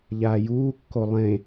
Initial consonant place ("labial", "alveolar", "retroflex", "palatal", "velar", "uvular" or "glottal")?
palatal